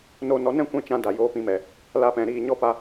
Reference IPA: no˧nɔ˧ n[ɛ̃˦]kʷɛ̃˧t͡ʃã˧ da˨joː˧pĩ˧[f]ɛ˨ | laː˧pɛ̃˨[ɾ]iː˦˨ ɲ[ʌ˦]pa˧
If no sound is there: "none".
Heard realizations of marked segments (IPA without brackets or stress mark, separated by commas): ɛ̃˦, m, ɾ, ɔ˦